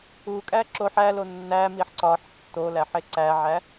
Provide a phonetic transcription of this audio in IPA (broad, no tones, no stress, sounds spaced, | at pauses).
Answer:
u kʼ æ ǁ o ħ æ l o nː æ m i ħ ǀ ɒ ħ tː o l æ ħ e ǀ æ ʕ æ